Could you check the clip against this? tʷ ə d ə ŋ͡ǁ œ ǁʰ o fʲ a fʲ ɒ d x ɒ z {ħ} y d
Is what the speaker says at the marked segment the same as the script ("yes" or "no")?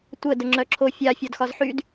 yes